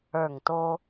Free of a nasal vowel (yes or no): yes